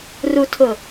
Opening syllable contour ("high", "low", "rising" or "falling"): low